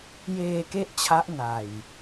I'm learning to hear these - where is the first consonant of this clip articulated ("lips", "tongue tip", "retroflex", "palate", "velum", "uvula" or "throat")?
palate